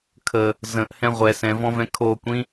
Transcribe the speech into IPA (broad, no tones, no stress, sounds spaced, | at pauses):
kʰ ə | z ə̃ ʔ h ɛ̃ ʁʷ ɛ s ɛ̃ v ɔ̃ v ɛ̃ kʰ o kʷ ĩ